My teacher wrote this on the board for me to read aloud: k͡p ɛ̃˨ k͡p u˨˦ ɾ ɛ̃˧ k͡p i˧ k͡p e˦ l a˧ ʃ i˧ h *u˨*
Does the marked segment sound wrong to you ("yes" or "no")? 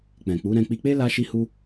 yes